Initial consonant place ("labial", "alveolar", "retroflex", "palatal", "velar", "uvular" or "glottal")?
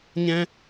palatal